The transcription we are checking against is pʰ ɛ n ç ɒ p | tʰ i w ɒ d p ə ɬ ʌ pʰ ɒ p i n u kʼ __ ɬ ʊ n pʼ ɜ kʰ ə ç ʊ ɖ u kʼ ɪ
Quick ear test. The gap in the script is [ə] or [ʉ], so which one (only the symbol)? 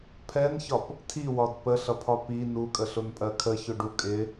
ə